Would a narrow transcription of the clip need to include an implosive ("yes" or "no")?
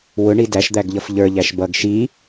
no